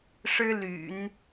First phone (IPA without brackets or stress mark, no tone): ʂ